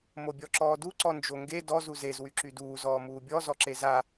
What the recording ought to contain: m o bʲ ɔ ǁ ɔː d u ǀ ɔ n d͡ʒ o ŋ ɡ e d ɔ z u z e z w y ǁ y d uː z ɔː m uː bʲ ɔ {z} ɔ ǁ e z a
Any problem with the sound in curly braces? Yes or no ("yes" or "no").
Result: no